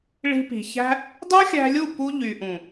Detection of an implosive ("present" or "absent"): absent